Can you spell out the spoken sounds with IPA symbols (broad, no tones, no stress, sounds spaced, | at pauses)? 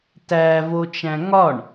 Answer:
t æ v o t͡ʃ æ̃ ŋ ɒ ɳ